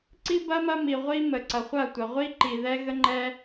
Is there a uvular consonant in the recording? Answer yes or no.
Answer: yes